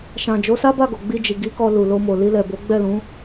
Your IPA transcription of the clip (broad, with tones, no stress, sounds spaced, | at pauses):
ʃ ã˨ d͡ʒ o˨˦ s a˦ b a˦˨ ɡ o˨ ɡ͡b i˧ d͡ʒ i˨ ɡ i˨˦ k ɔ˧ l u˨ l o˧ m o˨ l i˧ l ɛ˨ b o˨˦ ɡ͡b ɛ˦˨ l ũ˨˦